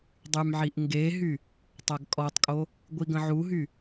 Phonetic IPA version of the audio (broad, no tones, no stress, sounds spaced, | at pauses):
dˤ y m ʕ i ʔ ŋ ɡ e ɦ y | tˤ a ɡ kʼ ɔ tˤ kʼ o | ɡʷ i ɡ ə̃ ʕ u ɦ y